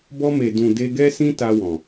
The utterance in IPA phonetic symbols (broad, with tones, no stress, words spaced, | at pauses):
bɔ˧me˨dũ˨ de˧ɡɛ˦sĩ˦ ta˧wɔ̃˨